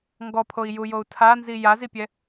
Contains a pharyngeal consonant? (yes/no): no